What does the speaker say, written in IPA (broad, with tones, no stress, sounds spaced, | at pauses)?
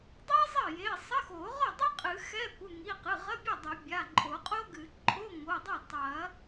dˤ i˥ zˤ ɐ˥˩ j e˩˧˩ sˤ ɐ˧˥˧ x o˨˩˦ ʁ ɔ˥˩ dˤ ɛ˥ qʼ ɨ˨˩˦ x ɛ˧˥˧ kʷ ɨ˩˧˩ ŋ i˩˧˩ q ɨ˩˧˩ ʁ ɐ˧˥˧ bʲ ɛ˥˩ dˤ ɐ˨˩˦ bʲ a˩˧˩ ǃʼ o˨˩˦ qʼ o˥ ɡ ɨ˨˩˦ ǃʼ o˧˥˧ ŋ o˩˧˩ dˤ ɐ˥˩ tˤ ɐ˨˩˦